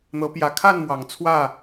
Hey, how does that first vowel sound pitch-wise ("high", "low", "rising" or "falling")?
rising